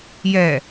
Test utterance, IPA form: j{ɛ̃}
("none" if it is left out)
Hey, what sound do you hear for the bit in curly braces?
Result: ɛ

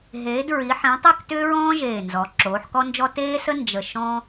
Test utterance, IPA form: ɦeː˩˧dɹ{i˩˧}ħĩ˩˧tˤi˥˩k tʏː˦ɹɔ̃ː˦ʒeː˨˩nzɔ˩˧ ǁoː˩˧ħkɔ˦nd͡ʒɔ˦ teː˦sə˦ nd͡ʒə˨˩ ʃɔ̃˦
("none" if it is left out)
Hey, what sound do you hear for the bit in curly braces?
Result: i˩˧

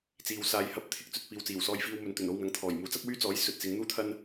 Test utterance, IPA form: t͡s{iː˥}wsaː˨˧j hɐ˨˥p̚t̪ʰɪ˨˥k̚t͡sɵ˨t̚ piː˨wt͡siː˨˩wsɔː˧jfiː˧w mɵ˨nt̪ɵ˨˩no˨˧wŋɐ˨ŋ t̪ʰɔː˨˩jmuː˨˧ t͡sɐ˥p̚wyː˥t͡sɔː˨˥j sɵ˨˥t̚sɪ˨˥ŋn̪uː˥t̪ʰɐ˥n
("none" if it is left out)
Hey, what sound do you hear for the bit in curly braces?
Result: iː˨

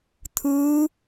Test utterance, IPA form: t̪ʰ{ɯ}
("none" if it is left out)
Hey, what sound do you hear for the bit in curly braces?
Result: ɯ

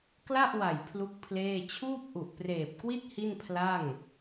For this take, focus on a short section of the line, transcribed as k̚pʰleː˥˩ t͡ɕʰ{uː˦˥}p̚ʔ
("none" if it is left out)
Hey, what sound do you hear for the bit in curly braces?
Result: uː˥˩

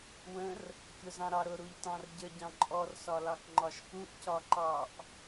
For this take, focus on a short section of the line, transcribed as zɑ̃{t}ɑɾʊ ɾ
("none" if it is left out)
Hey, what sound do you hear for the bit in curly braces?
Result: ɾ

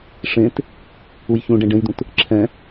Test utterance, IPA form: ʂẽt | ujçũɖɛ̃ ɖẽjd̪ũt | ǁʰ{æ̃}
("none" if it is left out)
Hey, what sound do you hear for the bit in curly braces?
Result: ɛ̃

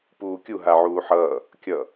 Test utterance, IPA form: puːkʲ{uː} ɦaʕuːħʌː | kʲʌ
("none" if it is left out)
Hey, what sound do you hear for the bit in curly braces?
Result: u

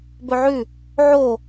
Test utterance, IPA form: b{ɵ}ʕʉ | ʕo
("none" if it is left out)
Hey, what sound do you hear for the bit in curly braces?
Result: ɵ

